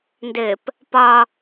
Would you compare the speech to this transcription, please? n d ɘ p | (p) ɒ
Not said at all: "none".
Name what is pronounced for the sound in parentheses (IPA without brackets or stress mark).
p